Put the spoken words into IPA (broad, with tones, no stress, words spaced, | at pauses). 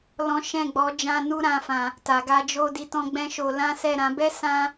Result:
lɔ̃˦ ʃɛ̃˦˨ɡ͡bɔ˨˦ d͡ʒã˧nu˧ɾã˨fã˨ | ta˨ɡa˧ d͡ʒo˧di˧tɔ̃˧ ɡ͡bɛ̃˦ʃo˧ lã˦sɛ˦˨ɾã˨˦ bɛ˦sã˧